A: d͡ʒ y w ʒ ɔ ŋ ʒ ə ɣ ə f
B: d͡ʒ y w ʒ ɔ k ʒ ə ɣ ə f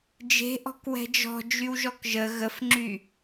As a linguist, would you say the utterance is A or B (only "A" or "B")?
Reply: B